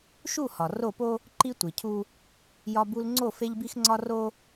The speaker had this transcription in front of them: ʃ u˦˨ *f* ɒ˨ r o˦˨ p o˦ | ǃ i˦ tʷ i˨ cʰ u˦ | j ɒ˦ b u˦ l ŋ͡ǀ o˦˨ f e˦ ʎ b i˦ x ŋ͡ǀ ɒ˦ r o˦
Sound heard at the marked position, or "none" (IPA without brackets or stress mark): h